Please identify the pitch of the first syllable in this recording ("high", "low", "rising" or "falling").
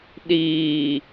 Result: low